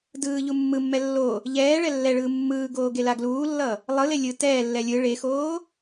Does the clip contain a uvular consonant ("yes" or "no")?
no